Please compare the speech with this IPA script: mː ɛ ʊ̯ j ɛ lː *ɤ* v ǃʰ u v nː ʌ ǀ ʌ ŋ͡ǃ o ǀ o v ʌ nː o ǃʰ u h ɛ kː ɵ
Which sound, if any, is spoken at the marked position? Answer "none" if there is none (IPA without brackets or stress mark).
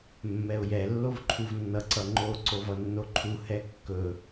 o